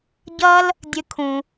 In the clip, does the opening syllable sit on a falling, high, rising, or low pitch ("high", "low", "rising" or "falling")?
high